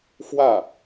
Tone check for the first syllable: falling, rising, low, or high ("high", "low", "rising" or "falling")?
falling